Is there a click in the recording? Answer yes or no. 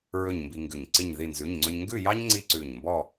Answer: yes